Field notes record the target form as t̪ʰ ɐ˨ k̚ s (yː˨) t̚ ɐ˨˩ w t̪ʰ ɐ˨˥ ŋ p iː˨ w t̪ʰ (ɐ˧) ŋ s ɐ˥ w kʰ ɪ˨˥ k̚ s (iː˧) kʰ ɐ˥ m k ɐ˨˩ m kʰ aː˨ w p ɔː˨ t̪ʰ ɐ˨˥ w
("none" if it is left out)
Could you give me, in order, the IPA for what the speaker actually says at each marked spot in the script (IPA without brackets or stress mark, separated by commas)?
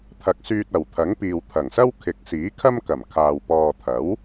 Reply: yː˧, ɐ˨˩, iː˨˥